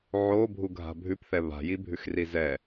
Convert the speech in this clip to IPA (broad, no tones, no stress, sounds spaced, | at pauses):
ʕ o bʱ u ɡʱ a̤ bʱ ʉ p θ ɛ β a̤ j i bʱ ʉ x r i z ɛ